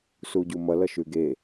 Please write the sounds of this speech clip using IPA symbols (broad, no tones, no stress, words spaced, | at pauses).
suɟumʌlʌ ʃʉɡe